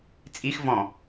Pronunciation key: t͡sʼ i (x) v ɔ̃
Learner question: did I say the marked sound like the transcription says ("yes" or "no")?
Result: yes